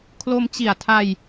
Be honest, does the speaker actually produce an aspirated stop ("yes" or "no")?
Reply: yes